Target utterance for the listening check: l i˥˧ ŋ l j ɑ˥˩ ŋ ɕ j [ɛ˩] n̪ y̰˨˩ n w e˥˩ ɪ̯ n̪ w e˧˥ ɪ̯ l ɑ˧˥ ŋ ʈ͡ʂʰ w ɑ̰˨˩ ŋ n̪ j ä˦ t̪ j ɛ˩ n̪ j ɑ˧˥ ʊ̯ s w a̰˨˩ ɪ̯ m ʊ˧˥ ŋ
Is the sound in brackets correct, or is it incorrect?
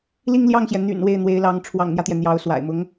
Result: correct